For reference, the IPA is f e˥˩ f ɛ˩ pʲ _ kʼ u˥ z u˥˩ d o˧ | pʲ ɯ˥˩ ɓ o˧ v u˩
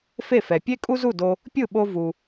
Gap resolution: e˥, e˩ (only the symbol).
e˥